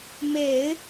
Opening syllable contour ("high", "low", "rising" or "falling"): low